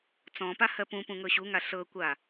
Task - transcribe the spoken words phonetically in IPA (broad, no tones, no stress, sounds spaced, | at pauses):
t͡s ɔ̃ p a h ɜ p ũ p ũ ŋ ɤ ɕ u ŋ a ɬ ɤ kʷ a